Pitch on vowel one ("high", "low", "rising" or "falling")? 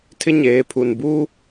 high